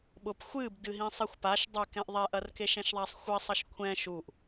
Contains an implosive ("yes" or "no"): yes